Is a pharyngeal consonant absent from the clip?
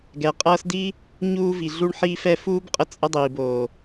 no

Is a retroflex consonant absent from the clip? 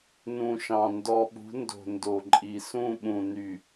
yes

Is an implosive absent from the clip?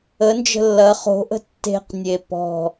yes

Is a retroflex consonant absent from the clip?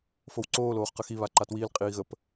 yes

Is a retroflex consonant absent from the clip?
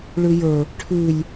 no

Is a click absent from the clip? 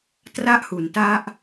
yes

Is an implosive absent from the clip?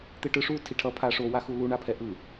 yes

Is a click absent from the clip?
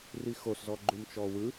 no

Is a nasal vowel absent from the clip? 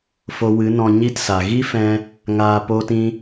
no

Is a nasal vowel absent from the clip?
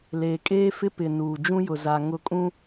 no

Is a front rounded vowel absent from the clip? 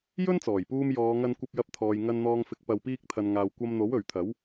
yes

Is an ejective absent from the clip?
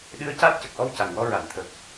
yes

